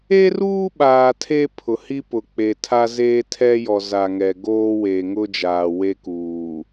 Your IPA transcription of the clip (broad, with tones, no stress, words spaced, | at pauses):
e˦ruː˦ɓaː˨ tʰe˦ pʰʊ˨hi˦pʊ˨k͡pe˨ tʰa˦zeː˦tʰɛ˦jɔ˨ za˨ŋɛ˨ɡoː˦ weː˨ŋʊ˦d͡ʒaː˨ we˦kuː˨